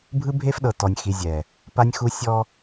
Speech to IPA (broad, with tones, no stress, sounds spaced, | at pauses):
bʱ ɯ˦ bʱ e˦ f ɗ ɤ˨ t ɔ˨ nʲ x i˨ zʲ ɛ˨ | p a˦ nʲ x u˦ sʲ ɔ˦